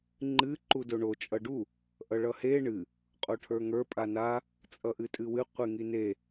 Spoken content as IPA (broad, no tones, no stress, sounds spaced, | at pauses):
ŋ͡ǃ ɨ ǃ u d o ɳ o t͡ʃʼ ʌ ɖ u | ʔ ʌ ɭ ʌ h e ɳ ɨ | qʼ o ʈʰ ə˞ ŋ ə˞ pʼ a n a | t͡sʼ ʌ ʔ ɨ tʼ ɨ w ɨ qʷ ɨ ŋ i n e